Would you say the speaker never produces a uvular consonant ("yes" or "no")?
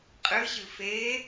no